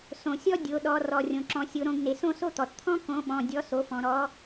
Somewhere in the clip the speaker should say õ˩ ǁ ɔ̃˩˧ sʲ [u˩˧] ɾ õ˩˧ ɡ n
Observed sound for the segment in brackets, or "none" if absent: o˩˧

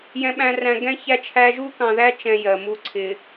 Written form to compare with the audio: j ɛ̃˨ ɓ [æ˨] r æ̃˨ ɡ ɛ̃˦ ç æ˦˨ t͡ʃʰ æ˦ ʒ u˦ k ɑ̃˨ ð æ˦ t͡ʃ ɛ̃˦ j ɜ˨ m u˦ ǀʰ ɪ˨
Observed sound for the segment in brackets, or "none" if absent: æ̃˨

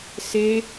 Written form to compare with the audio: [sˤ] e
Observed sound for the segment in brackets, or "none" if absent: s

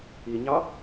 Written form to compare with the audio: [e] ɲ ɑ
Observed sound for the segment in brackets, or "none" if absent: i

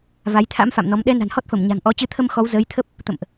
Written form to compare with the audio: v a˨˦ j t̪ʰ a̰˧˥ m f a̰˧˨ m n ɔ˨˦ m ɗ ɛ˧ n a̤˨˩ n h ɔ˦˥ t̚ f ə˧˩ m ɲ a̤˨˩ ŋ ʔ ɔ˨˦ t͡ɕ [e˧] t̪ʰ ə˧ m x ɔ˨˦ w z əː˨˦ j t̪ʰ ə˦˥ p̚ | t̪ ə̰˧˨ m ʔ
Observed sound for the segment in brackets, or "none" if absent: ɨ˧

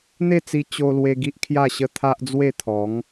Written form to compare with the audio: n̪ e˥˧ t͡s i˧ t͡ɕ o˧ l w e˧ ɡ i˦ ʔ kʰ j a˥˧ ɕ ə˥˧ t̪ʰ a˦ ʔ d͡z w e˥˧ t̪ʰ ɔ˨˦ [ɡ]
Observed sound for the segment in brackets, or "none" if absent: ŋ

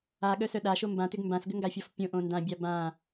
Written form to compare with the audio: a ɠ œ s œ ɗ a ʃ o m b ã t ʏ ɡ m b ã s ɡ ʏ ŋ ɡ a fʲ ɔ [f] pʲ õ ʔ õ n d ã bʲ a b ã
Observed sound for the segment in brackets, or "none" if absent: f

